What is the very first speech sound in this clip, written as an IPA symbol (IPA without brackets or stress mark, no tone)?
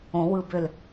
õ